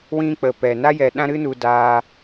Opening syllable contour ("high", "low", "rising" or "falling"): high